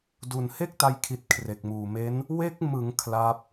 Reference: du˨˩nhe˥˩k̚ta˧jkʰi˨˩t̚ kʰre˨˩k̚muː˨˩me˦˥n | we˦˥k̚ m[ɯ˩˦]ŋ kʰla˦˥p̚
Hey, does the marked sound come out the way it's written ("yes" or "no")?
yes